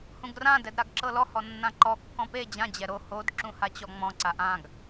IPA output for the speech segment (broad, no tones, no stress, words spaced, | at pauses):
hũɡrã dɛdɾaɡǁɤlɔ hɔnːãǃɔ kːɔ̃pe d͡ʑã d͡ʑɛɾo hod ǁũhat͡ɕɔŋ͡mɔ̃ ǀaʔãɡ